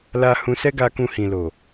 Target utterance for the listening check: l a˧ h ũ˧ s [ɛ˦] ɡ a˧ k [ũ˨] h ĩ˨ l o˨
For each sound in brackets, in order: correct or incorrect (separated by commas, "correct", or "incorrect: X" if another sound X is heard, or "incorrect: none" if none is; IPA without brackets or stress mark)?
correct, incorrect: ũ˧